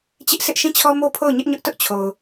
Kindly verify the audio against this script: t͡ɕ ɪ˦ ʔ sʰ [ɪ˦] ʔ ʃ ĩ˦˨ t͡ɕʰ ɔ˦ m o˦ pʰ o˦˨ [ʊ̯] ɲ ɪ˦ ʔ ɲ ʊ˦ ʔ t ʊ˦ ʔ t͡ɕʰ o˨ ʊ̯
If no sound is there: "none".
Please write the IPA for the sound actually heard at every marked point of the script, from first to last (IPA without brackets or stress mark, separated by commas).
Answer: ɪ˦, ʊ̯